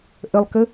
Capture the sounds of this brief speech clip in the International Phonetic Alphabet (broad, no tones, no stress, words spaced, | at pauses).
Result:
ʔəlˠkə